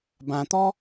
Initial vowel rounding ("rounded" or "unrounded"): unrounded